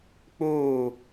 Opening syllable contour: falling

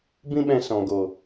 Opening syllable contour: high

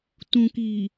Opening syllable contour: low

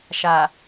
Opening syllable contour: low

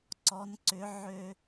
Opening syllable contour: rising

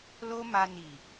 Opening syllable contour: high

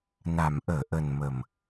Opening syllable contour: low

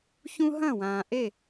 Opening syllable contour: high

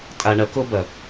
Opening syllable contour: low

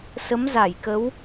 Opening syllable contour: rising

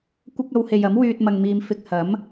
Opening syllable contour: high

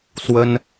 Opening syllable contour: high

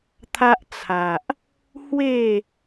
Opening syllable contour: high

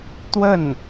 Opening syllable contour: falling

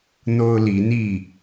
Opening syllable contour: high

